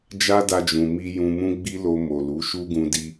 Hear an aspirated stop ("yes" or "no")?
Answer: no